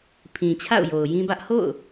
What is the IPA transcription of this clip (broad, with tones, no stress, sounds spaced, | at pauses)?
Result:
pʰ ĩ˨ t͡ɕʰ a̰˦˨ ʊ̯ j o˨ ʊ̯ j ĩ˦ b ä˦ ʔ h o̰˦˨ ʊ̯